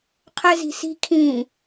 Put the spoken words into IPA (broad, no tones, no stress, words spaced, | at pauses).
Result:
qʰɛzi̤si̤ kʰĩː